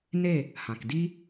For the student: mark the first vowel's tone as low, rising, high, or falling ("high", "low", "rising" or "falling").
falling